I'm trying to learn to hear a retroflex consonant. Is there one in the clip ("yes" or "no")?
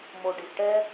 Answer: yes